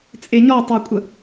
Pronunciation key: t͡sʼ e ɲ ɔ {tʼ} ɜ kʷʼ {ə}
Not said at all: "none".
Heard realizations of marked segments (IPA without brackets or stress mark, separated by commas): tˤ, ə